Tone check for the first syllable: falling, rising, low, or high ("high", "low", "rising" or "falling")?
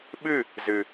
falling